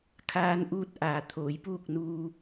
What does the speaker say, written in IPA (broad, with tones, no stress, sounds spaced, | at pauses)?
kʰ aː˧ n ʔ uː˧ t̚ ʔ aː˩ t̪ʰ oː˩˧ j p uː˥˨ k̚ n uː˧